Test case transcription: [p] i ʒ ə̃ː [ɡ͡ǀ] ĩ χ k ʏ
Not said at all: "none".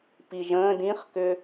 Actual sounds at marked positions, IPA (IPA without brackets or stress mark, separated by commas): p, d